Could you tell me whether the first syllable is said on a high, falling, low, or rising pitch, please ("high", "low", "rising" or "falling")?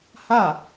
falling